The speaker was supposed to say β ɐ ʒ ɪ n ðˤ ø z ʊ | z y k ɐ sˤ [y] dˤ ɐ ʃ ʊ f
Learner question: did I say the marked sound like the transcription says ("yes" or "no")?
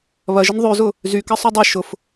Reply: yes